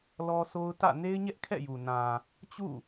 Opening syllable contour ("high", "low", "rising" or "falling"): high